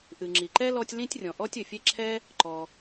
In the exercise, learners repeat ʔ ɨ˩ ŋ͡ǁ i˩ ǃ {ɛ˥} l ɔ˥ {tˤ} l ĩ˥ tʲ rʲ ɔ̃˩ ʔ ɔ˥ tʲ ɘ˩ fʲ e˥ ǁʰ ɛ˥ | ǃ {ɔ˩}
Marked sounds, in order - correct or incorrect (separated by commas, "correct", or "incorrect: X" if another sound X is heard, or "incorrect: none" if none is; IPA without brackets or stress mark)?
correct, incorrect: tʲ, correct